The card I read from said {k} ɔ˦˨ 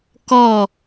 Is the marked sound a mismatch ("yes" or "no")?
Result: no